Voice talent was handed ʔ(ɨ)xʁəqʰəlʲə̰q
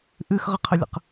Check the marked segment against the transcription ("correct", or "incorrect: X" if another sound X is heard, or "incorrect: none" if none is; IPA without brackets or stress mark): correct